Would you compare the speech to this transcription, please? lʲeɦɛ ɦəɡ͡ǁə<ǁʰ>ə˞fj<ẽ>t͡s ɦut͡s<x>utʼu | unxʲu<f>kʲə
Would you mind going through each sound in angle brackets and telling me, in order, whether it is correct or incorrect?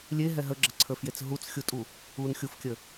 incorrect: ǀʰ, incorrect: e, incorrect: xʲ, correct

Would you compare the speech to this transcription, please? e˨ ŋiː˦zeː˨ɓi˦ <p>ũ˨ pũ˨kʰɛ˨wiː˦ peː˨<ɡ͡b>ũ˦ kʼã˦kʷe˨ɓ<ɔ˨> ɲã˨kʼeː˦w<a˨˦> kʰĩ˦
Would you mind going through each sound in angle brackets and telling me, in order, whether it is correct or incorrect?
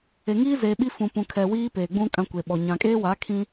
incorrect: f, correct, correct, correct

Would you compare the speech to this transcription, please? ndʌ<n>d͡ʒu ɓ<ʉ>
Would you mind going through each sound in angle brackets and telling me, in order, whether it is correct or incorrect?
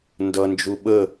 correct, incorrect: ə

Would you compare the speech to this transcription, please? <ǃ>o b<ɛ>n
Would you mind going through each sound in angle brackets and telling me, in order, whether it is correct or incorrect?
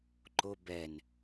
correct, correct

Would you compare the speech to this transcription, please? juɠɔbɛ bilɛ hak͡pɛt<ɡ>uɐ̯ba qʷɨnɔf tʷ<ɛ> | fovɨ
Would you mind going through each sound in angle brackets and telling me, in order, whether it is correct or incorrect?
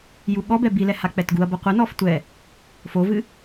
correct, correct

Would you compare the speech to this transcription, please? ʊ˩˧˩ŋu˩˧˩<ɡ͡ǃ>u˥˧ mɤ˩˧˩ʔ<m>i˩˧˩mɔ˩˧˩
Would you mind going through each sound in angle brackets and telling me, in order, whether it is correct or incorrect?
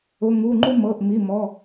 incorrect: ŋ͡ǃ, correct

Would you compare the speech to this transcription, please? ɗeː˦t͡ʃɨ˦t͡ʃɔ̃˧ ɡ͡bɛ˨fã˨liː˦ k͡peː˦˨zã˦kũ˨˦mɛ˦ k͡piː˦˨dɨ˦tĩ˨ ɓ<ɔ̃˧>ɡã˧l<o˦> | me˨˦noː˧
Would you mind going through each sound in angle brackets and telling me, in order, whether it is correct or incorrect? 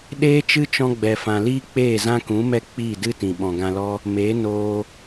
incorrect: ɔ̃˨, incorrect: ɔ˦

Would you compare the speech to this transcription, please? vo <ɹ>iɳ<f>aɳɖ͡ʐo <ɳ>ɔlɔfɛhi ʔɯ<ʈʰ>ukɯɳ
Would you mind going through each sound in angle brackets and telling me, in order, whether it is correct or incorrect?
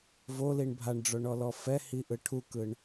incorrect: l, incorrect: bʱ, correct, correct

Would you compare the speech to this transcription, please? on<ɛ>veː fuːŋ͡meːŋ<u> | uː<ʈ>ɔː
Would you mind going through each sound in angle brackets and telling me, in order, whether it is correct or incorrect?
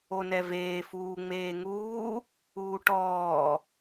correct, incorrect: uː, correct

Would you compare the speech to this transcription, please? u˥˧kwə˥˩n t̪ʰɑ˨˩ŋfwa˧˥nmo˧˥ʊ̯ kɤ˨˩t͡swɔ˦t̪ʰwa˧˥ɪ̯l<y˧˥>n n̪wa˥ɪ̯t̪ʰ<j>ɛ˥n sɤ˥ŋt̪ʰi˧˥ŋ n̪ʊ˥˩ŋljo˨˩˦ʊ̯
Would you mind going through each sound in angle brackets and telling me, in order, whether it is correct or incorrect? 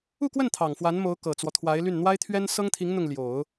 incorrect: y˥˩, incorrect: ɥ

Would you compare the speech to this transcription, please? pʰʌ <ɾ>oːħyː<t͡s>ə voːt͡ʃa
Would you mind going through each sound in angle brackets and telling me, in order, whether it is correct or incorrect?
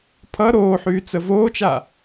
correct, correct

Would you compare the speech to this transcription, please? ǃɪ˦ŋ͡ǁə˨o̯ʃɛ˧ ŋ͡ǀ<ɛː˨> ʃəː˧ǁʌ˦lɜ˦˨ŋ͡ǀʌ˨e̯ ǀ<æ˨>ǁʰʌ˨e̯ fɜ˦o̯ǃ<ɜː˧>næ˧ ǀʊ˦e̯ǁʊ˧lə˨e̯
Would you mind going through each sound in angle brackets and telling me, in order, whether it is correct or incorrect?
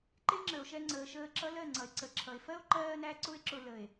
incorrect: əː˨, incorrect: ə˨, correct

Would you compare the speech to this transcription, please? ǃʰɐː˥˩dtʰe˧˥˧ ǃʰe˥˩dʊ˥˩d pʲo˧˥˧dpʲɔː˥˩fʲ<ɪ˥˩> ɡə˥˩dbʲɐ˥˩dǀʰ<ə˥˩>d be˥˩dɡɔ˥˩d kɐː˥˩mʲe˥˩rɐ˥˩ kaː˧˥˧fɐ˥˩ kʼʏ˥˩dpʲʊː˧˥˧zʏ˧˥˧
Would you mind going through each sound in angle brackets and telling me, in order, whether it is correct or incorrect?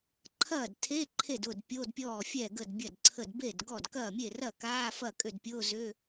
incorrect: ɛ˥˩, correct

